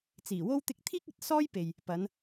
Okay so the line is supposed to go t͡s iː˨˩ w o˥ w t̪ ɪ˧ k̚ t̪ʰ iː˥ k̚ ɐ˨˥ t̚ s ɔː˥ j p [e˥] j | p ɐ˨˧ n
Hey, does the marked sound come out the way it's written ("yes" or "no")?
no